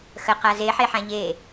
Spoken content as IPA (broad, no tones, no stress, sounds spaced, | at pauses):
x ə q a z e ħ e ħ ã ʎ e